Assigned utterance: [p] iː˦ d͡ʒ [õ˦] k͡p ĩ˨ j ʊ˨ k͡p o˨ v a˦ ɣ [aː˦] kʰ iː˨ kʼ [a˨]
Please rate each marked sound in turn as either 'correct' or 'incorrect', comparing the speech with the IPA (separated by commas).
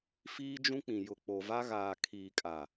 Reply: incorrect, incorrect, incorrect, correct